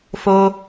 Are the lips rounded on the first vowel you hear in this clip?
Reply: yes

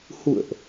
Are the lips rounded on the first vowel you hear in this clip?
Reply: yes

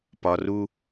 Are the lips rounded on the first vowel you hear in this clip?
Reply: yes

